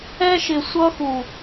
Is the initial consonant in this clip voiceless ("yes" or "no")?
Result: yes